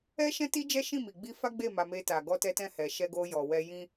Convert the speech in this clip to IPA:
ɛ˦ ʃ ɛ̃˦ t i˦ d͡ʒ ɛ˦ ʃ ĩ˦˨ m i˨ ɡ͡b i˧ f a˦ ɡ͡b e˦˨ m a˧ m e˧ t a˨ ɡ ɔ˧ t ɛ˧ t ɛ̃˧ h ɛ˨ ʃ ɛ˧ ɡ o˧ j ɔ˨ w ɛ˧ j ĩ˦

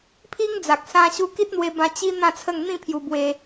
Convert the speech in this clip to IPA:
pʰ i˦ ŋ d͡z a˨ k̚ s ã˧ ɕ u˧ k i˦ t̚ n̪ w e˧ b ã˧ t͡ɕ i˦ n̪ ã˥˧ t͡sʰ ə˥˧ ŋ n̪ ĩ˥˧ pʰ j u˧ b w e˧

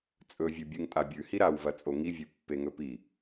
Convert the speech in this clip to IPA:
t͡sʼ ɵ vʲ ʉ bʲ ɨ ŋ tʼ a bʲ ʉ h i ɾ a w v ɐ t͡sʼ o ŋ i vʲ ɨ pː e ŋ ɵ p i

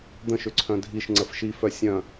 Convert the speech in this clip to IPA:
d̪ ə̃ ʃ ʏ ǀʰ œ̃ dʱ i ʃ ŋ͡ǀ ə f ʃ i f œ sʲ œ̃

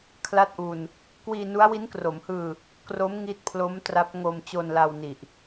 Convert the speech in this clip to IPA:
kʰ l a˥˩ t̚ ʔ u˧ n | k w iː˧ n u˦˥ a̯ w i˦˥ n k r o˩˦ m h ɯː˧ | k r o˦˥ m ŋ i˦˥ t̚ pʰ l o˦˥ m t r a˦˥ p̚ ŋ o˧ m t͡ɕ o˧ n l a˧ w n i˨˩ ʔ

